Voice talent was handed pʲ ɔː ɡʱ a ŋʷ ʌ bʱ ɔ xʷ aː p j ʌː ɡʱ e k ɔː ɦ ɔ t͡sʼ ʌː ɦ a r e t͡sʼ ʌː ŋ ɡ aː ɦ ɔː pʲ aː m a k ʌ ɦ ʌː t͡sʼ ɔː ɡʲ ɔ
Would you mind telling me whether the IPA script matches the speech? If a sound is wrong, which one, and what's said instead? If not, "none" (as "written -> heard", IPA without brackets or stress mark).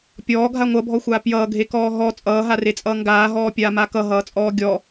none